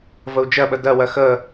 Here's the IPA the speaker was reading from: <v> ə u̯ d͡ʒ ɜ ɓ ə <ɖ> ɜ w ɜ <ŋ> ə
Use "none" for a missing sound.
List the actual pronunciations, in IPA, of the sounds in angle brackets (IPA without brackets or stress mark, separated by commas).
v, d, x